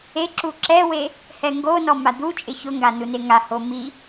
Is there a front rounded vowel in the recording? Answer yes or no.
no